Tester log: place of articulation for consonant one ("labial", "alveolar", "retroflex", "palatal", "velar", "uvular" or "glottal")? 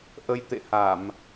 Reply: glottal